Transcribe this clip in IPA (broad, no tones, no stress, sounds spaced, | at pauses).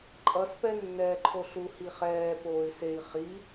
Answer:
ǃʼ ʌ s p ɛ nː ɛː ǃʰ o ɬ u h i χ ɛː p oː y̯ s e i̯ χ i